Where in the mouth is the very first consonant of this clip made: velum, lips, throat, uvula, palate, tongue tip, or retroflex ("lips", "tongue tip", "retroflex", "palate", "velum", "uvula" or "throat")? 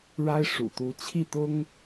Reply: retroflex